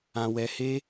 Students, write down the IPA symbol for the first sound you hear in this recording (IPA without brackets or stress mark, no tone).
ã